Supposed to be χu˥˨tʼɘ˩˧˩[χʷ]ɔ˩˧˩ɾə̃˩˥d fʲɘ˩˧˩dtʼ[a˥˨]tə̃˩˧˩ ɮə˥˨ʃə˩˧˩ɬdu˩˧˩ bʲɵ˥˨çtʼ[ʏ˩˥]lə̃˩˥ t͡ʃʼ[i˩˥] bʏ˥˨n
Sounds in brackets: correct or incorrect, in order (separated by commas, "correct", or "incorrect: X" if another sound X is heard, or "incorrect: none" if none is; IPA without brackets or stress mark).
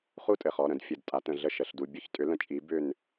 incorrect: χ, incorrect: a˩˥, correct, correct